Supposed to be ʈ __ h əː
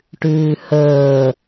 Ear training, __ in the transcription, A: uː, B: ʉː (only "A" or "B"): B